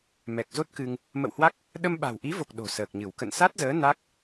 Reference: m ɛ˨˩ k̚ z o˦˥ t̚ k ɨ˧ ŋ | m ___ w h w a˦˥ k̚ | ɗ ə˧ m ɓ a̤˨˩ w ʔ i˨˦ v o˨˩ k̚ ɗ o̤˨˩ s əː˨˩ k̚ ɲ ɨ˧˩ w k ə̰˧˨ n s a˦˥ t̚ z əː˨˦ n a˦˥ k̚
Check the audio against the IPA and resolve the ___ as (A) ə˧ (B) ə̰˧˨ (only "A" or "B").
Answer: B